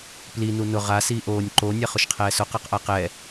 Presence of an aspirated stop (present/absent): present